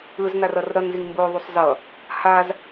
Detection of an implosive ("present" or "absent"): absent